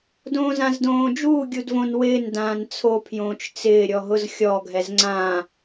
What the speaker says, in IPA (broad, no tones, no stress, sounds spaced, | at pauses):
d õː z ã z d õː d͡ʒ uː ɡʲ u d v õ n w ɪː n d ãː n t͡sʰ o pʰ j õː t͡ʃ t͡s ɪː ɾʲ ɔ ɦ ʊ z xʲ ɔ ɡʱ ɛ z ŋ͡ǀ ã